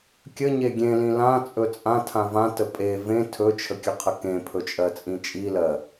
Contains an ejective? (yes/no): yes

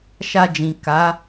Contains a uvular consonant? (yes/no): no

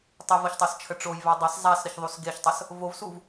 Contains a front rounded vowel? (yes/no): no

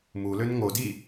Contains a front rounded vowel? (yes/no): yes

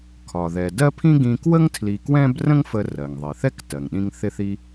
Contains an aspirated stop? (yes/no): yes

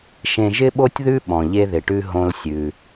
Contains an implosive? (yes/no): yes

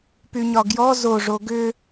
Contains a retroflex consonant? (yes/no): yes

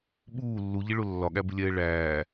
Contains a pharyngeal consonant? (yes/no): no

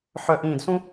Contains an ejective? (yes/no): no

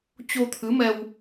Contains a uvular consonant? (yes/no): no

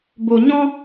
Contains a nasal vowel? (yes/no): yes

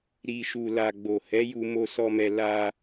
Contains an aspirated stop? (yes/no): no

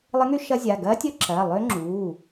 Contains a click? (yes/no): yes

